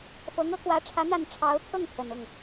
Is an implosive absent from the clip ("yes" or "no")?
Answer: yes